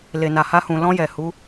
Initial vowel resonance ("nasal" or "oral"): oral